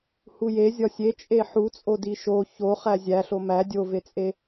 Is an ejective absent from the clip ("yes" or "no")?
no